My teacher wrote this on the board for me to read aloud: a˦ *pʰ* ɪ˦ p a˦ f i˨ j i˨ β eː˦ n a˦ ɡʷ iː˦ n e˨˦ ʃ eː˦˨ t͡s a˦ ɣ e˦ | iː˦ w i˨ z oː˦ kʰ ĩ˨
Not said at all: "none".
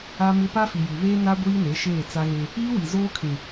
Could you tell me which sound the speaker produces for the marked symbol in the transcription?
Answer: m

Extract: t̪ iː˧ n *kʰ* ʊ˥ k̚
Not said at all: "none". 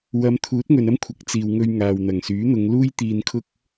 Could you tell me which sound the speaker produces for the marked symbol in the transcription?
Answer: kʰ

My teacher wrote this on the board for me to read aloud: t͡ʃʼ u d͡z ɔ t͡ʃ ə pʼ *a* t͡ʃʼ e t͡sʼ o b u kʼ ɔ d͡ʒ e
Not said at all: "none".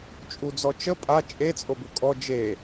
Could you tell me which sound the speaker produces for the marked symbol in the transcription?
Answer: a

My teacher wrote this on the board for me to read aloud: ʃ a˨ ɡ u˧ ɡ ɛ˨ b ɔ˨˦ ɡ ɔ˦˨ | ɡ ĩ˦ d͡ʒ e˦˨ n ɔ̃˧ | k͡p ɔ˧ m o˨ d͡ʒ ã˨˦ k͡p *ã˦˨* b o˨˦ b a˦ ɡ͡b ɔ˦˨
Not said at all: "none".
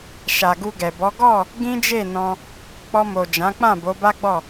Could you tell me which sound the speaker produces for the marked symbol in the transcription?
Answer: ã˦˨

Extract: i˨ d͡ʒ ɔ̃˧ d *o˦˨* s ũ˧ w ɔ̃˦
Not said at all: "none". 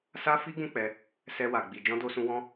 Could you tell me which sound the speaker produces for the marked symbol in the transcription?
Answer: o˧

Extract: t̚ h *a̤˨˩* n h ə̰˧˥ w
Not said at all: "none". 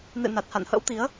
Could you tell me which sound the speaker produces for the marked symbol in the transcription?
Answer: a̰˧˨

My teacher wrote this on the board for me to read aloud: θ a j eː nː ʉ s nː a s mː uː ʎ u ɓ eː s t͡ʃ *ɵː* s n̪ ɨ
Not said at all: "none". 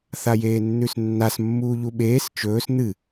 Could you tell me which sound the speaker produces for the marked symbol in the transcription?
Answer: ɵː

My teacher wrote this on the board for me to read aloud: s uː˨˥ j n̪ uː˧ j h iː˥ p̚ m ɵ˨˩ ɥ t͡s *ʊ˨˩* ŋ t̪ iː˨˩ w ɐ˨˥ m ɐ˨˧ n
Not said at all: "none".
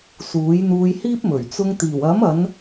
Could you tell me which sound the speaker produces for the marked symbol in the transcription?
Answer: ʊ˧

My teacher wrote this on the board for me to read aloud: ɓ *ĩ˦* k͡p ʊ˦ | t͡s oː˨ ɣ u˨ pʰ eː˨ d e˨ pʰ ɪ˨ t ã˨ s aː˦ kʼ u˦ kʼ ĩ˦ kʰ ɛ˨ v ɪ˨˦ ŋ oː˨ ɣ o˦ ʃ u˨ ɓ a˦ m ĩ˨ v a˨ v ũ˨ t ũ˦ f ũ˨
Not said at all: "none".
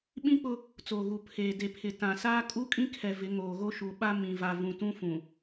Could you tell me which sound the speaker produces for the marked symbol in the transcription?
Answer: ĩ˦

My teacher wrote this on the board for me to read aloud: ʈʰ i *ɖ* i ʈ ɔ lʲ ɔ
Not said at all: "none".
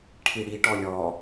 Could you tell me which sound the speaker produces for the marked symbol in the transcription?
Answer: ɽ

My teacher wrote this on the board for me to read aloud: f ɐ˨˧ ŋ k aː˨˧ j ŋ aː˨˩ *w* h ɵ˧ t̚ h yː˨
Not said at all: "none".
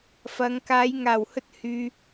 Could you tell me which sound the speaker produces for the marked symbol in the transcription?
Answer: w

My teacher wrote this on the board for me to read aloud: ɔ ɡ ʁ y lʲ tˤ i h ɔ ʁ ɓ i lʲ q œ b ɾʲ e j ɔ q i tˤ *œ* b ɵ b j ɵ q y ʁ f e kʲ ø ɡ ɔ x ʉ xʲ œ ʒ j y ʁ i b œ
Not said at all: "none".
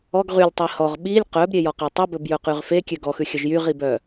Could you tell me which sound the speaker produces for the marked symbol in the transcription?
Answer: ɵ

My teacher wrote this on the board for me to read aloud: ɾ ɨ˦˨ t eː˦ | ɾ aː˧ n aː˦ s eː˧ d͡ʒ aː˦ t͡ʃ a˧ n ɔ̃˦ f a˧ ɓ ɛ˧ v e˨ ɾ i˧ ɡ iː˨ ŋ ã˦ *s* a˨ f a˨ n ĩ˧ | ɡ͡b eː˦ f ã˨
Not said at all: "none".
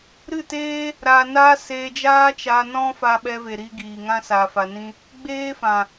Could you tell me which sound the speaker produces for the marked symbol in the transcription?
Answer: s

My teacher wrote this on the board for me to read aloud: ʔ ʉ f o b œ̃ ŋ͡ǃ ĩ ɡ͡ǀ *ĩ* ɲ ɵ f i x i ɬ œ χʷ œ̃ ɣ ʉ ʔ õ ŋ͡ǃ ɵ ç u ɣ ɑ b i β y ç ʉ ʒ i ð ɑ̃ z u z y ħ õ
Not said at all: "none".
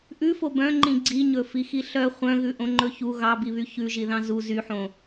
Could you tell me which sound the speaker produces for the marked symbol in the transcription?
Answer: i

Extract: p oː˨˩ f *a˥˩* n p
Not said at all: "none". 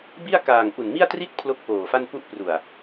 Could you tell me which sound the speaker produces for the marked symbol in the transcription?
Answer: a˥˩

